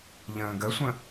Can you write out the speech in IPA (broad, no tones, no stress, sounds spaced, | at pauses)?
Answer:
ʎ ə̃ː ɡ ə sʷ ə̃